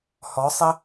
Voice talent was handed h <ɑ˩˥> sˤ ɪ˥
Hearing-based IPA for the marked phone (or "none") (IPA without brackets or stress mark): ɔ˩˥